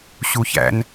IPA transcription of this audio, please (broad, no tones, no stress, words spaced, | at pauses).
ɕuçæ̰n